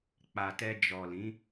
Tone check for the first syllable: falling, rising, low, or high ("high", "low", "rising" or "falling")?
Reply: low